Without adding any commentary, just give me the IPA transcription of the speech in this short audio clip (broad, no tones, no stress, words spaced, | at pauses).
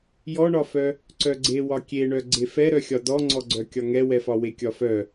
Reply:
jɔɳɒfœ | ǀœɡ͡ǀewɒ kʲeɳœ ɡ͡ǀefɛɾœxʲɒ dɔŋ͡ǀɔɡ͡ǀœ kʲɒŋɛwɛfɒ wekʲɒfœ